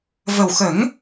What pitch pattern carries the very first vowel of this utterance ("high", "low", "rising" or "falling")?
low